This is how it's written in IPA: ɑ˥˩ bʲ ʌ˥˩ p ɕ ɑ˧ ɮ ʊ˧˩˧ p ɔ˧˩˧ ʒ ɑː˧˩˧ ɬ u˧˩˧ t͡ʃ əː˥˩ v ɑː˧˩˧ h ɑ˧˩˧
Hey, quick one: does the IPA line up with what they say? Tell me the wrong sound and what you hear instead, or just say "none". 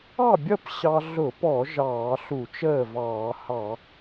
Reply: none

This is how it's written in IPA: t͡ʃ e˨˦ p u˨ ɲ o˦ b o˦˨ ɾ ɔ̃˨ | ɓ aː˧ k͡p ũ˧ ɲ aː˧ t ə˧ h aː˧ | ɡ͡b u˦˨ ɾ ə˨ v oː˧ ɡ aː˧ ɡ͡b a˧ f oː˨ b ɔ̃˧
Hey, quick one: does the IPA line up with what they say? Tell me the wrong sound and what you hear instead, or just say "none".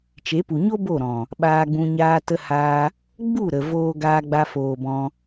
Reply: k͡p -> ɡ͡b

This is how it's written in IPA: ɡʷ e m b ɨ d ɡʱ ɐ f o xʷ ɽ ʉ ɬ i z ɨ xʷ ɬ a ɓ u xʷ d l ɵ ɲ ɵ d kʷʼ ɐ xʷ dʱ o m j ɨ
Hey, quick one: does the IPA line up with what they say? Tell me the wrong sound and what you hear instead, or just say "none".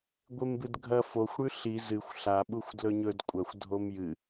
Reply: none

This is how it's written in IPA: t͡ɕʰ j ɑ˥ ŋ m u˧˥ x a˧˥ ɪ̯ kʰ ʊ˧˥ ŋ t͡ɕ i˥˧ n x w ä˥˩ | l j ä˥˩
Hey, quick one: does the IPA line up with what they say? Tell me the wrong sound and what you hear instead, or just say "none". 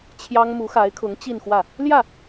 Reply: none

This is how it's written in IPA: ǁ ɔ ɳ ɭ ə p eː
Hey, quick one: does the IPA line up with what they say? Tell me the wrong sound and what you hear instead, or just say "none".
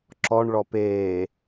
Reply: ə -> ɔ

